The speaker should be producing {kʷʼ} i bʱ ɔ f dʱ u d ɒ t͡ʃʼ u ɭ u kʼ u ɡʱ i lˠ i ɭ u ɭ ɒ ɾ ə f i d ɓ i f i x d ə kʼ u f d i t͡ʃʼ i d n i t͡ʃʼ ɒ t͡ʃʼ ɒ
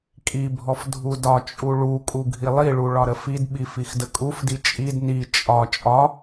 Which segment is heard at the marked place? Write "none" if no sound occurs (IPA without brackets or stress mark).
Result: kʼ